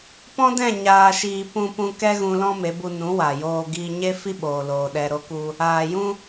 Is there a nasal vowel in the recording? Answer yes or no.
yes